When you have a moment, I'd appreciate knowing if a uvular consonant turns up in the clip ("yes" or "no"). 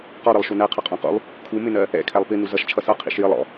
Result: yes